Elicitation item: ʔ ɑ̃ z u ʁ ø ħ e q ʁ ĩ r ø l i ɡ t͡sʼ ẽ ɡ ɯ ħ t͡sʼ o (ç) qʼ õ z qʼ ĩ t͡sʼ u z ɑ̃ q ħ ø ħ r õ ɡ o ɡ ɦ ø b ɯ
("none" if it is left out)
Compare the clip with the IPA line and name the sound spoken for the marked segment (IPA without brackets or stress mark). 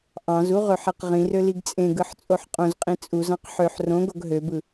ħ